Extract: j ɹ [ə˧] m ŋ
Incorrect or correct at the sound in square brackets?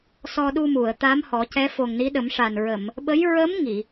incorrect: ə˧˥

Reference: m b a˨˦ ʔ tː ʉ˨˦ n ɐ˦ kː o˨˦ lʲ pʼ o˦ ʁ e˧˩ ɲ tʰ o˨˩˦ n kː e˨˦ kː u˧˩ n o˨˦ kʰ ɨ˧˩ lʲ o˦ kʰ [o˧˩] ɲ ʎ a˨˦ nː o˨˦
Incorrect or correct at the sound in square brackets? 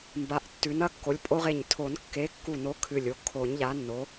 incorrect: o˨˩˦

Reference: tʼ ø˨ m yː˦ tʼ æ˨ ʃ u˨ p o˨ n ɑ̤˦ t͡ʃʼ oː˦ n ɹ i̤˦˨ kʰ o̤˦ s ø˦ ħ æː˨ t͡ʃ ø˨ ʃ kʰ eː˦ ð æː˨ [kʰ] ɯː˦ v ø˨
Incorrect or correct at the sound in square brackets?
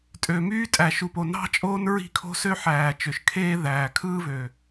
correct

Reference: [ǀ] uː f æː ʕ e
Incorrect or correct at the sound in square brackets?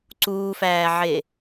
correct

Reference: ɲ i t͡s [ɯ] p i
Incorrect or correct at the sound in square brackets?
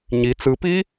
correct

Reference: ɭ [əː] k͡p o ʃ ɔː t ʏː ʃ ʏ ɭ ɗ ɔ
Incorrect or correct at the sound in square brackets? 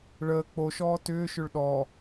correct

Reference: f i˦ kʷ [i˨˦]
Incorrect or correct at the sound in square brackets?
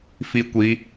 correct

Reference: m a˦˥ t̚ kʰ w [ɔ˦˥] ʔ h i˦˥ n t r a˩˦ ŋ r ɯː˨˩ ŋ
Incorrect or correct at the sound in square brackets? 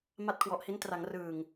incorrect: ɔ˨˩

